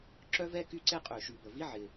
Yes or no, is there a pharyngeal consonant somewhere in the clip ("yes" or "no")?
yes